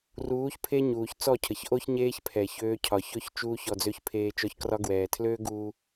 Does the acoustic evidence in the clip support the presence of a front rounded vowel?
yes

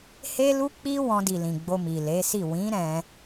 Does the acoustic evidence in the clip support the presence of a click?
no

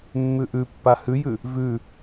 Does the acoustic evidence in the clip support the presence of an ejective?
no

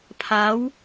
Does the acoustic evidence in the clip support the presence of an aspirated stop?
yes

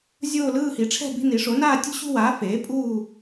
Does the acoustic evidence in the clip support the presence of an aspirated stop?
yes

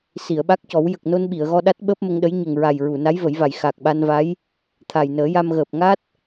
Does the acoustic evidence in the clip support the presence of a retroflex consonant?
no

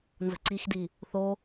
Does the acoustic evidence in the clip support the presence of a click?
yes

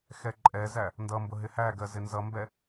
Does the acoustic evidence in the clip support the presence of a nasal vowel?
no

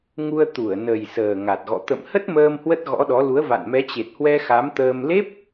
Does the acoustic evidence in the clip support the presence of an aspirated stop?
no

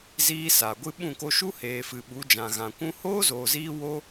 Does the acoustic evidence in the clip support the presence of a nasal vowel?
yes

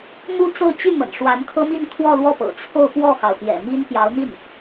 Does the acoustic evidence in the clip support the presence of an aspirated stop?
yes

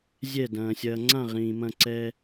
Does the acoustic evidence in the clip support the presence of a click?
yes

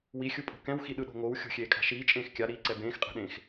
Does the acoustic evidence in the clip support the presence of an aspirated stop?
no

